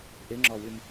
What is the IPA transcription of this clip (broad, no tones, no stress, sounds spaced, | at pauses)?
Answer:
ʔ ɪ ŋ͡ǁ ɔ w y m